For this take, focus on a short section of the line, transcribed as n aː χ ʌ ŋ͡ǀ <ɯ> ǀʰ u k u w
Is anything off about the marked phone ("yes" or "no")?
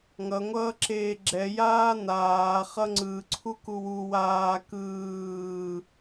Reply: no